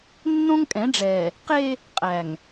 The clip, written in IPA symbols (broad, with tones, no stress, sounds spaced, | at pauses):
nː õ˦ ŋ kʼ ɛ̃˨˦ ɖ͡ʐ ɛː˨ | q e˦ | qʼ æ˨ ŋ